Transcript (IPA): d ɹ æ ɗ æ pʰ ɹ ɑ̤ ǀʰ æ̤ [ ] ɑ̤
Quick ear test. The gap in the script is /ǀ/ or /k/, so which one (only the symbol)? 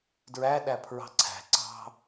ǀ